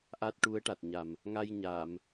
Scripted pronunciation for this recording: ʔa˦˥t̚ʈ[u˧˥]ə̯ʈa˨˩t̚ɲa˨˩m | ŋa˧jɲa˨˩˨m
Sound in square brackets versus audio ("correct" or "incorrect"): correct